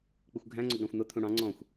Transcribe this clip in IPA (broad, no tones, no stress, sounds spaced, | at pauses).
k͡p ɪ xʷ ɡʱ æ̃ ŋ͡ǀ ʊ ɡ ɽ ɑ̃ xʷ n̪ ʊ t̪ʰ ũ ɽ ɑ̃ ŋ͡ǀ ɔ̃ xʷ